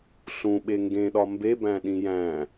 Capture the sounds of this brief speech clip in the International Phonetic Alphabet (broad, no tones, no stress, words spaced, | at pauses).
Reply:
ɬũɓe ŋɡẽɗɒ mbebæ̃ɗĩ jæ̃